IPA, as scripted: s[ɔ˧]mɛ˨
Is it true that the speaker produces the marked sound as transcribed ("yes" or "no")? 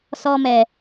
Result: yes